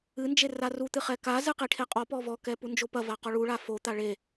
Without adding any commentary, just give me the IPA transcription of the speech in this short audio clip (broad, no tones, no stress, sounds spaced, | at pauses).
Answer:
ɨ n d͡ʒ e r a r u t̪ ɨ χ ɛ k a z ɨ q i ʈʰ e qʼ ɔ p ɔ v ɔ k ɛ p u n d͡ʒ o p ɐ v a q ɔ ɭ u ɭ a f o t̪ a ɭ e